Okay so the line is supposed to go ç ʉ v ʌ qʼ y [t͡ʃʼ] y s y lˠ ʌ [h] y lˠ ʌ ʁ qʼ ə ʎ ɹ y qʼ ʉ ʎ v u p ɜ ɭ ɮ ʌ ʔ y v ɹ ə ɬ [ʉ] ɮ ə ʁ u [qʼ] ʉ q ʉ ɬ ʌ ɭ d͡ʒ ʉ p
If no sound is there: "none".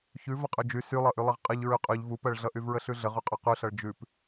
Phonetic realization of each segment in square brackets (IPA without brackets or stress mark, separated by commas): d͡ʒ, ʔ, ʉ, qʼ